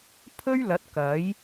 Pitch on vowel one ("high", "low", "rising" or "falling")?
high